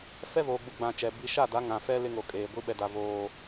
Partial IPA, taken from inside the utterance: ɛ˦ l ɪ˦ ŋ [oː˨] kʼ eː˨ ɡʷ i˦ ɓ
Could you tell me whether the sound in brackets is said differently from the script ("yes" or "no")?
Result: yes